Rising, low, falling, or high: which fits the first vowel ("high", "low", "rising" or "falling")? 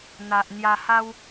low